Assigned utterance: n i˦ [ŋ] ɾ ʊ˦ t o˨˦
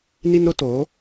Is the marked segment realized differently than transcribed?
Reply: yes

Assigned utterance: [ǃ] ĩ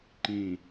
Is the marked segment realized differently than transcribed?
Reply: no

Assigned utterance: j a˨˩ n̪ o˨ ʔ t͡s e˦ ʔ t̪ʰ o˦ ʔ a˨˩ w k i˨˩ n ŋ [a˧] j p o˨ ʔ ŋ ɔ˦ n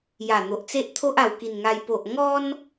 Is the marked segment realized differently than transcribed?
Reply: no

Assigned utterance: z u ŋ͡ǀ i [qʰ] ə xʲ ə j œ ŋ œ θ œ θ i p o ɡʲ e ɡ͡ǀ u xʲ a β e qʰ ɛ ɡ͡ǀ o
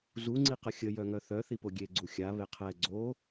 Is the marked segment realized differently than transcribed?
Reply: yes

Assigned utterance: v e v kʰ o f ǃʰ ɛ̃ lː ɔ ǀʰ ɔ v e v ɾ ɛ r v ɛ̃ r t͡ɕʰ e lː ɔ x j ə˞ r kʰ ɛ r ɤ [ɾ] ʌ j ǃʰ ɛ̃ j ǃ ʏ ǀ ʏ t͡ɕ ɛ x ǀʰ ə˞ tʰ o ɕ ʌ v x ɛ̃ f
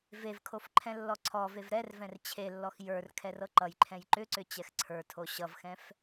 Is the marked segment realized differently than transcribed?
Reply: yes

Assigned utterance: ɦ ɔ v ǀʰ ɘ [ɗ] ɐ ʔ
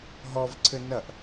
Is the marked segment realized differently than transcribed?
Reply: yes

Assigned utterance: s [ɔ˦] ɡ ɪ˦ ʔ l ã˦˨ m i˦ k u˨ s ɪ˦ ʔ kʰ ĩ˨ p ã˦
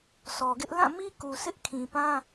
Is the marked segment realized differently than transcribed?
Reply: yes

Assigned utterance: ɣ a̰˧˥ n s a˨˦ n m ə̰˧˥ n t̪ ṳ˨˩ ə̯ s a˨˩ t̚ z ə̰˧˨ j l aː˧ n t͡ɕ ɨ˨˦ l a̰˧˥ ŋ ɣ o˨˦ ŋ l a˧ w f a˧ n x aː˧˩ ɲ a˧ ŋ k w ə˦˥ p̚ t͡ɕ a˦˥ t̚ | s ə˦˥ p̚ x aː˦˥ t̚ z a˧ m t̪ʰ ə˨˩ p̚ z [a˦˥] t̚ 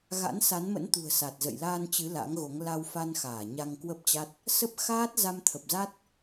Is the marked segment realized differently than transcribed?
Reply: no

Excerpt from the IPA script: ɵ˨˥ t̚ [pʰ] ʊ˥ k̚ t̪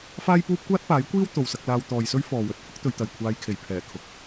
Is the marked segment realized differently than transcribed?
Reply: no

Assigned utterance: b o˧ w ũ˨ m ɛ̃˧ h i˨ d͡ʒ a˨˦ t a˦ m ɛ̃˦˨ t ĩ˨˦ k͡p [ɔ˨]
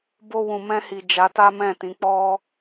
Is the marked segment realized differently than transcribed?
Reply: yes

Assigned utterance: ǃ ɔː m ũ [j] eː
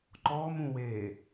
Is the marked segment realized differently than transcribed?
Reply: yes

